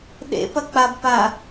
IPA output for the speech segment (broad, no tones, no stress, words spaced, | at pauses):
ɗḛpɐ k͡pabpa